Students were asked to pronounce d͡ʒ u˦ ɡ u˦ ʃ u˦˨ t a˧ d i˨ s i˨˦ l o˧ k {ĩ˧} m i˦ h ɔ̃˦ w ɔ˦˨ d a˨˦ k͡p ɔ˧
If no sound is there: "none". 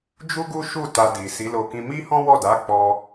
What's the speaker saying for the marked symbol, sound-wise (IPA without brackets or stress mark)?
ĩ˧